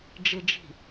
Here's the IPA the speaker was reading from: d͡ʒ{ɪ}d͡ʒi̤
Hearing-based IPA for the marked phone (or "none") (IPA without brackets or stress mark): ɪ